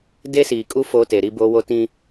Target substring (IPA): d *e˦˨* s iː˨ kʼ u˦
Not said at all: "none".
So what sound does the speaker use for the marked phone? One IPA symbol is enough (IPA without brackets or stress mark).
e˦